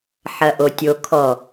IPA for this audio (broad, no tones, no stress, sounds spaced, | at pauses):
ħ ɐ ʔ o tʲ o kʰ ɔ